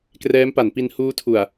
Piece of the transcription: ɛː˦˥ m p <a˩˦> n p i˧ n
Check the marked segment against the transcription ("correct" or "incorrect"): correct